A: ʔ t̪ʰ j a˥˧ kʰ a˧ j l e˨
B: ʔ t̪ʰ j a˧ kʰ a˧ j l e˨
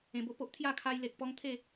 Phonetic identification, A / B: A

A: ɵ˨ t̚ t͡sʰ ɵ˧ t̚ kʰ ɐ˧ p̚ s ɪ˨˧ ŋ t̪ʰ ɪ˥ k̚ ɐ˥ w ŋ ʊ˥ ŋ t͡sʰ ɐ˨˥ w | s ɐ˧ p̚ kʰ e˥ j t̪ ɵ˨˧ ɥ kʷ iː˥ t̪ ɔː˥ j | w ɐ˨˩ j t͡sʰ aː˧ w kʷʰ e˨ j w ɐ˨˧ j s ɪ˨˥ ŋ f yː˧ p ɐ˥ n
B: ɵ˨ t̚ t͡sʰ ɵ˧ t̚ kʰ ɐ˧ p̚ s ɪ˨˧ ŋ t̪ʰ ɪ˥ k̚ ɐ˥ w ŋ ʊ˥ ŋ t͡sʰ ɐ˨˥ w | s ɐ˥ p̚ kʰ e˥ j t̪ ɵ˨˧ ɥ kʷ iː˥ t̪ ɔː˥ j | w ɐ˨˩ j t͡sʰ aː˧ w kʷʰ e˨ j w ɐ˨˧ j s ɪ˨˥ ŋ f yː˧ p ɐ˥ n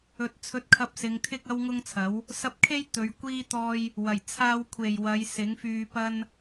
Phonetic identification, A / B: A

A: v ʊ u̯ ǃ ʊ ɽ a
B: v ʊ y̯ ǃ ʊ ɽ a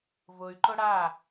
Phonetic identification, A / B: B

